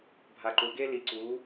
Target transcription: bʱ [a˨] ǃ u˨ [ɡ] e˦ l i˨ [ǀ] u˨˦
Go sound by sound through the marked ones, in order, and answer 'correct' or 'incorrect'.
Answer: correct, correct, correct

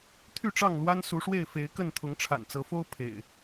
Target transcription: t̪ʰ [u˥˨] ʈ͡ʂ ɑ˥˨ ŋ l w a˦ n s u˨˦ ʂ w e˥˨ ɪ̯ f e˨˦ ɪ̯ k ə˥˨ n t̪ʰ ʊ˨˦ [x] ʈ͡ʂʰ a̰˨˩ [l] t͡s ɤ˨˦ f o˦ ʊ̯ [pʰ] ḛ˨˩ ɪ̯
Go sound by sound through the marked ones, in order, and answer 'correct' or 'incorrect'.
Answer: incorrect, incorrect, incorrect, correct

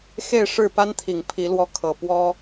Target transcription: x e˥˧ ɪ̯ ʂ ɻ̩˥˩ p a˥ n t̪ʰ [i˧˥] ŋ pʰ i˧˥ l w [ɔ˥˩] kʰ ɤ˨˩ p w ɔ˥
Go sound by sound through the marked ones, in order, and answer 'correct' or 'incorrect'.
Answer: incorrect, correct

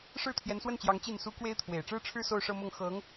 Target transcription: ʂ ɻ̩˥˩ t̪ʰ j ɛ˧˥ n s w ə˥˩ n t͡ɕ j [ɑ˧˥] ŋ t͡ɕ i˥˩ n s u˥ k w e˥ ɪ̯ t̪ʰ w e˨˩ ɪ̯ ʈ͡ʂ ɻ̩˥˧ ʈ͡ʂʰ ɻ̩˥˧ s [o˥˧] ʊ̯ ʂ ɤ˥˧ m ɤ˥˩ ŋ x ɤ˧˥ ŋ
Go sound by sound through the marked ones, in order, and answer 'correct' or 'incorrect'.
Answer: correct, correct

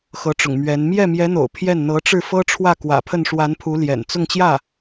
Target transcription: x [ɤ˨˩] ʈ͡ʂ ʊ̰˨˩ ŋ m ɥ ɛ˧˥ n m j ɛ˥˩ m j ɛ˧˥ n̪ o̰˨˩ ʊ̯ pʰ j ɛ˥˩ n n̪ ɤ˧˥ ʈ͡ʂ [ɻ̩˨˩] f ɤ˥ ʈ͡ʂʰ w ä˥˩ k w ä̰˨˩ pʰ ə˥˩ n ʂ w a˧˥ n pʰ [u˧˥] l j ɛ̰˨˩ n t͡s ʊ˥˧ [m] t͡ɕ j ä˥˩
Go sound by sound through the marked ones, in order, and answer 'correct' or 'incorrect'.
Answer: incorrect, incorrect, correct, incorrect

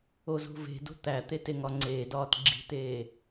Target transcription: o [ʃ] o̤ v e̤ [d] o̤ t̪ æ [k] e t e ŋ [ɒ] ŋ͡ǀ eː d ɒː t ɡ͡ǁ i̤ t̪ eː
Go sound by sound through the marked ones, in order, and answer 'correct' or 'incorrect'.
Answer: incorrect, correct, incorrect, correct

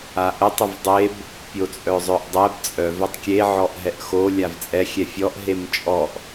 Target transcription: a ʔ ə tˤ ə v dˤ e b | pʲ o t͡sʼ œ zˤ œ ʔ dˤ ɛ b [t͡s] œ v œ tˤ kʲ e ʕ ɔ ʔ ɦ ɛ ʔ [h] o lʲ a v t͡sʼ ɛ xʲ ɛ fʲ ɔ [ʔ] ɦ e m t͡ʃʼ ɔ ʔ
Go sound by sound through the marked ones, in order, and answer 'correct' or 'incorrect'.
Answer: incorrect, incorrect, correct

